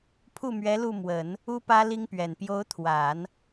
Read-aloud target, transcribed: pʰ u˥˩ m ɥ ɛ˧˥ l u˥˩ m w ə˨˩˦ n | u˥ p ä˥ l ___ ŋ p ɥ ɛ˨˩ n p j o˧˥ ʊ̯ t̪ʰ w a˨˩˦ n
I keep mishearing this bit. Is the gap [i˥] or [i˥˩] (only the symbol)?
i˥